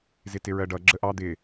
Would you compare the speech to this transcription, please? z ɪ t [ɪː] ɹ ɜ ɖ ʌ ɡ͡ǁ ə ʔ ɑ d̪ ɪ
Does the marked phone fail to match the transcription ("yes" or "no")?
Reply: yes